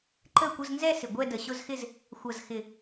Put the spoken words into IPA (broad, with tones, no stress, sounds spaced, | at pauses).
ǃ ə˥˧ kʷ ə˧˥˧ z n z ɛ˥˧ s ɪ˨˩ ɡʷ ɛ˥˧ d ə˨˩ ɕ ʊ˥˧ z x ɪ˥˧ z | xʷ ɐ˨˩ z x ɪ˨˩